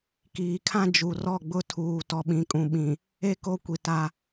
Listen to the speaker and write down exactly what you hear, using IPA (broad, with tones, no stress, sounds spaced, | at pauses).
k iː˨ kʰ ã˦ d͡ʒ u˨ r ɔ˦˨ ɡ͡b ʊ˦ tʰ uː˨ t ɔ˨ ɓ ĩ˨ kʼ ũ˨ ɓ ĩ˨ | e˦ k o˦ kʷ i˨ t a˦